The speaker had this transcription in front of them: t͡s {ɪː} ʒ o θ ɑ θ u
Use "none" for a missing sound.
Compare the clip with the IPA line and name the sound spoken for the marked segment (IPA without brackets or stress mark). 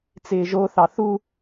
ɪː